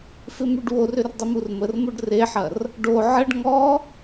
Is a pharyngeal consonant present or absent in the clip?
present